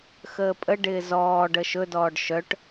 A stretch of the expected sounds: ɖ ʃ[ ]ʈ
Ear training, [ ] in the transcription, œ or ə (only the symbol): œ